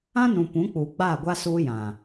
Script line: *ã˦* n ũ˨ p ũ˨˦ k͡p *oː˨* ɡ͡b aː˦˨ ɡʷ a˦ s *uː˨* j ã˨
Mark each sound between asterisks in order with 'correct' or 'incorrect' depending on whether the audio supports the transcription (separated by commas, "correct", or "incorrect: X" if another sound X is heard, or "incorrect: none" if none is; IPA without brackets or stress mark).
correct, incorrect: uː˨, incorrect: uː˦